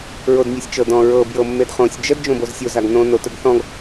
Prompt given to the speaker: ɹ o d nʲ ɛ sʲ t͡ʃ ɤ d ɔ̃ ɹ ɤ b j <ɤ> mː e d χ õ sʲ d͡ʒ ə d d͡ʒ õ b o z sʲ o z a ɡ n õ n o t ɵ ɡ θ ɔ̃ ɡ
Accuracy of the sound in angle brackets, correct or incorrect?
correct